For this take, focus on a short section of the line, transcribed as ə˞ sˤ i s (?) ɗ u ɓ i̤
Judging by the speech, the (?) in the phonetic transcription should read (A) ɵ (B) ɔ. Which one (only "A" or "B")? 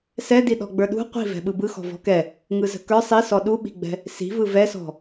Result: B